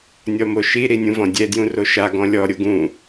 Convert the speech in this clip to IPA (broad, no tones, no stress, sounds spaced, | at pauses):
nʲ ɔ m o ʃ i ɾ i nʲ ũ v ɔ̃ dʲ ɛ d j ũ r o ʃ a ɡ ɔ̃ lʲ ɔ ɾʲ o ɡ ũ